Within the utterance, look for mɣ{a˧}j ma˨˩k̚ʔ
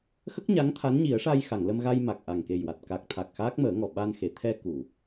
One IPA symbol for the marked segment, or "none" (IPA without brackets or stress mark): a˧